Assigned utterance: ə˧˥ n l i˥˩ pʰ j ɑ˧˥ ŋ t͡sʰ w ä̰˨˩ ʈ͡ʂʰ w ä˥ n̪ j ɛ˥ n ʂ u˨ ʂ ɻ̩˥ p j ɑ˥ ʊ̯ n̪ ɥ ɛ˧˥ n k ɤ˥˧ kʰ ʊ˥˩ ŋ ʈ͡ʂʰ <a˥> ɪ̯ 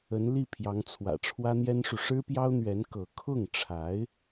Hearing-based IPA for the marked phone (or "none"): a˧˥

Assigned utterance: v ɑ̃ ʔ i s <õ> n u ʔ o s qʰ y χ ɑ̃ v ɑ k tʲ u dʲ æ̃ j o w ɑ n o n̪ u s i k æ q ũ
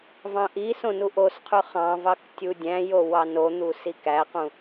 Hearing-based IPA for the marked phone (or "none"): õ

